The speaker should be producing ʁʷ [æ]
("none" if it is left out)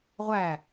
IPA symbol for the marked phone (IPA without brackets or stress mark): æ